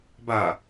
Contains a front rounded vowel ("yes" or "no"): no